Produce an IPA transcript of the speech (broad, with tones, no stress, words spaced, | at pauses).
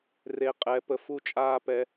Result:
re˨ qʼɛ˨˦pə˨ fu˦t͡ʃʼaː˦pɛ˨˦